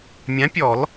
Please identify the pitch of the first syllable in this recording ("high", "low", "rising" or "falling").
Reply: rising